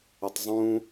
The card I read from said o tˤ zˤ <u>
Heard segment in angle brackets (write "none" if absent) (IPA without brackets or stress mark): ũ